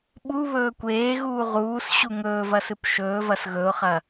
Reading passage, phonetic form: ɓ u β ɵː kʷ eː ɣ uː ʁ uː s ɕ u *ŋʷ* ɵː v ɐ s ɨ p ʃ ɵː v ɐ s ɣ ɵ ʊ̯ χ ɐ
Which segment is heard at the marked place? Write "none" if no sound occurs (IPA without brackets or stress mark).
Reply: ŋ